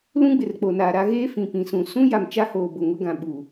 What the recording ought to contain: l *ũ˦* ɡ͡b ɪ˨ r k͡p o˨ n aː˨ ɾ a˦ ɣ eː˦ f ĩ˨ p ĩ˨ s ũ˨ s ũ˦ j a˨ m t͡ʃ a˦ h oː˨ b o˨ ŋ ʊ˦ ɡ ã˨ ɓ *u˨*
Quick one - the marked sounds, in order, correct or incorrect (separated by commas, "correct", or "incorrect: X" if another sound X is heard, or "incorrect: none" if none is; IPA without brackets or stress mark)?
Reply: correct, correct